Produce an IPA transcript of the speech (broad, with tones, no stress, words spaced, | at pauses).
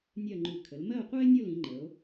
nʲɜ˥˧ŋ͡ǃʉ˧˩ kʰə˩˧lmɜ˥˧o̯qʷa˥e̯ nʲo˥˧lĩ˩˧ŋ͡ǃə˩˧o̯